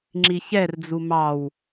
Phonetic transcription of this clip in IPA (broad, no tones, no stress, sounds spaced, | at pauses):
ŋ͡ǁ i ç ɛ r d͡z u m ɑ w